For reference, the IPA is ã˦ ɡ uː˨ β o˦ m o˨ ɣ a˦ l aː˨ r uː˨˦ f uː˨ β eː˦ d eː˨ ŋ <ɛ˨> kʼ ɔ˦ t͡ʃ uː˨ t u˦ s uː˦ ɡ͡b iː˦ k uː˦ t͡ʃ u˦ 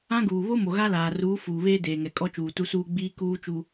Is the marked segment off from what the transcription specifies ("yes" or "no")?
no